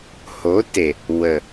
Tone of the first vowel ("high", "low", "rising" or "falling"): rising